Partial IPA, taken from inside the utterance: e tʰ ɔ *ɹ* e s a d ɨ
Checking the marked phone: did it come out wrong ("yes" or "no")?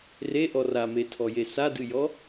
yes